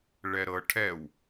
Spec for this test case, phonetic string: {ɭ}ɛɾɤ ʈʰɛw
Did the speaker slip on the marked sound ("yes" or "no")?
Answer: no